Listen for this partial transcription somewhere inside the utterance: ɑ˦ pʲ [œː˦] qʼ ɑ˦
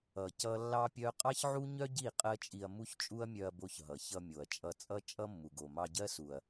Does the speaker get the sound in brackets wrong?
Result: yes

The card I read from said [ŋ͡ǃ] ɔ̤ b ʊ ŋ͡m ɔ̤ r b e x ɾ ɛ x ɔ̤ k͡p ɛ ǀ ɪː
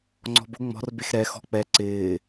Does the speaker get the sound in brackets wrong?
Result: yes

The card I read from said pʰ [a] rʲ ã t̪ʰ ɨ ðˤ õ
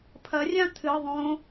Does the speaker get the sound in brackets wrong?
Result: yes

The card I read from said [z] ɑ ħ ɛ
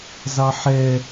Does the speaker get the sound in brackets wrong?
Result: no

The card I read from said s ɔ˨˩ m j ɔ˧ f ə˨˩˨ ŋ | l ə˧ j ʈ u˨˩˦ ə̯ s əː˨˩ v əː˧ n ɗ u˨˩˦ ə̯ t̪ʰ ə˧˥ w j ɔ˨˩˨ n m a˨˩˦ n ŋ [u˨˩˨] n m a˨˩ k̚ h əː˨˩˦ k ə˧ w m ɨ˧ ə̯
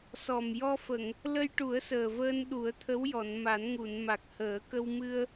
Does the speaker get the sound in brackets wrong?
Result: no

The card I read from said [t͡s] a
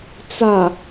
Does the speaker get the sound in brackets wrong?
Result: no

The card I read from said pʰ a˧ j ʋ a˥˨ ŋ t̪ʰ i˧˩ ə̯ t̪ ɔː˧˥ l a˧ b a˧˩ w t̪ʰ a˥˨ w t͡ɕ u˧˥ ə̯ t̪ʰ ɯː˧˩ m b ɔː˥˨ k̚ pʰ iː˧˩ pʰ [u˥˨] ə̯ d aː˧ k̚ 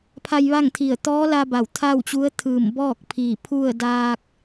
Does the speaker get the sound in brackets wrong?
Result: no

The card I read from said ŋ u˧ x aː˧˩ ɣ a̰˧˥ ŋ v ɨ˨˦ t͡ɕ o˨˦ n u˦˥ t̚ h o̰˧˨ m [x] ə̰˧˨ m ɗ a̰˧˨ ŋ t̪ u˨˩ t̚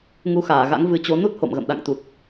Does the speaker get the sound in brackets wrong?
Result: yes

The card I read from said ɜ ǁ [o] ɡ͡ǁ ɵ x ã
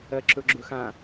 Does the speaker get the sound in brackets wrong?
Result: yes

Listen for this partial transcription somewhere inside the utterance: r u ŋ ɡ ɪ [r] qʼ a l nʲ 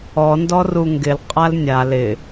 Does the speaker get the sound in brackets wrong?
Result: yes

